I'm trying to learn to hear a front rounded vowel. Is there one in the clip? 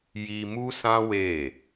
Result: no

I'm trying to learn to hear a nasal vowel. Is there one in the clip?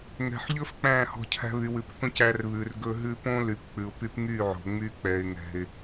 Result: yes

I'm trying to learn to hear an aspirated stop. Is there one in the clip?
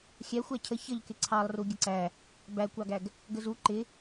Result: yes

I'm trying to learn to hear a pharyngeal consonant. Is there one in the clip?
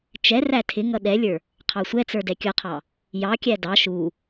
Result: no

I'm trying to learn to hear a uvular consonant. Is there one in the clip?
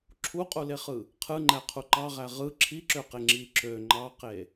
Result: yes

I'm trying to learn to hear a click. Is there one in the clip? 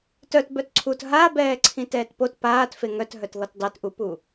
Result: yes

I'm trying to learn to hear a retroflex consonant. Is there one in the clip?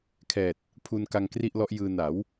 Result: no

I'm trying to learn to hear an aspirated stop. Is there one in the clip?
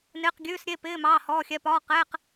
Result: no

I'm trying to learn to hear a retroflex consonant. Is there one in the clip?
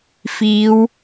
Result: no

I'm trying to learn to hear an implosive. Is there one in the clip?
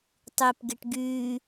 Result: no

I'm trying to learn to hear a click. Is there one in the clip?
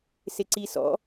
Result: yes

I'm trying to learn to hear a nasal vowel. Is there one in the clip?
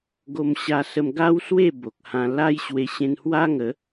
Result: yes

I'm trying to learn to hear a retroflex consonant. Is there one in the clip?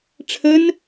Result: yes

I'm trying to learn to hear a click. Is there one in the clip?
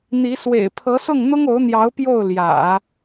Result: no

